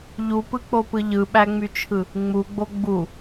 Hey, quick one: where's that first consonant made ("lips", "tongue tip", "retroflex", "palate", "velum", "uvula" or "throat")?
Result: palate